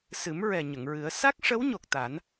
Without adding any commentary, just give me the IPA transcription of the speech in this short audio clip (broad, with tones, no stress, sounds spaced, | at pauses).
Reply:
s ɨ˨˩˦ m ɹ ɛ˨˩ ɲ ə˨˩˨ ŋ ɹ ɨ˨˩˦ ə̯ s a˦˥ k̚ ʂ ə˧˥ w ɲ o˨˩ k̚ t̪ a˨˩˦ n